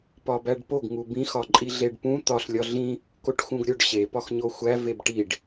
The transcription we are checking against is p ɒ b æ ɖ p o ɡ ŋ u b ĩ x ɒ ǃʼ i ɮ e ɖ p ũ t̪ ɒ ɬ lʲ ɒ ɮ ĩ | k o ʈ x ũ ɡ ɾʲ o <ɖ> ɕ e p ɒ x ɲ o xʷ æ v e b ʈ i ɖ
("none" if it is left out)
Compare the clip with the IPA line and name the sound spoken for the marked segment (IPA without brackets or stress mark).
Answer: ɖ